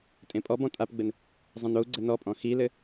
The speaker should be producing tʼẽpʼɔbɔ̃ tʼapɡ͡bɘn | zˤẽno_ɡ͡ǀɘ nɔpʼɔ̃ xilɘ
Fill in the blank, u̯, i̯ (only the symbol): u̯